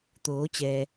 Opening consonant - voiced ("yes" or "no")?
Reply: no